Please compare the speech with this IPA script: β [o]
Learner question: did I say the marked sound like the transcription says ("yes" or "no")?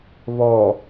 no